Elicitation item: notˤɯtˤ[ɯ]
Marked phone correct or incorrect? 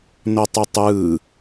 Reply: incorrect